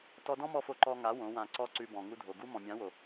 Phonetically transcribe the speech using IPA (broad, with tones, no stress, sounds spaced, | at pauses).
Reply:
t ɔ˧ d ɔ̃˦ m ɔ˧ f o˧ ǃ ɔ˧ ŋ a˨˦ w õ˨˦ w ã˧ ǀ ɔ˦ ǀ ʉ˧ b ɔ̃˨ ŋ u˧ dʱ o˨ ɡ u˧ m ɔ̃˨ mʲ ã˨˦ w o˨